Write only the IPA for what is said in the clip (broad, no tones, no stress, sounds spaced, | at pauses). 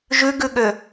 ʒ ʉ ɡ ʉ ɠ ø